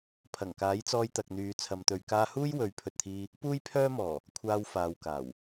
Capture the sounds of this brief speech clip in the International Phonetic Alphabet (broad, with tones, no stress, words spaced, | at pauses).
pʰɐ˨˩ŋkaː˨˥jt͡sɔː˧j t̪ɐ˨k̚n̪yː˨˧t͡sʰɐ˨˧mt̪ɵ˨˧ɥ kaː˧huː˥j wɵ˨˥ɥpʰɵ˨t̚t̪ʰiː˧ | puː˥jpʰœː˥mɔː˨˩ | kʷʰaː˧w faː˨wkaː˨˩w